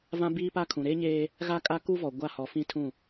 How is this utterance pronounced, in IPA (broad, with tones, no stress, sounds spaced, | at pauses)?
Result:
v ã˦ b iː˦ p a˦ kʰ ũ˨ ɾ eː˦ ɲ eː˦ | ɣ a˦ kʼ a˦ k u˦ v ɔ˨ ɡʷ a˦ h ɔ˨ f ĩ˦ tʰ ũ˦˨